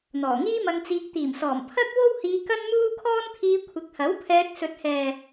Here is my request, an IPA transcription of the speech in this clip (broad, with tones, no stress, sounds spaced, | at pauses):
n̪ ɔː˨˩ ŋ iː˥ m ɐ˧ ŋ t͡s iː˧ k̚ t̪ iː˨˩ m s ɔː˨˩ m pʰ ɐ˥ k̚ w o˥ w h iː˧ k ɐ˥ n m uː˥ kʰ ɔː˥ n t̪ʰ iː˧ kʷʰ ɪ˨˥ k̚ h ɐ˨˥ w pʰ ɛː˧ k̚ s ɵ˨ t̚ h ɛː˨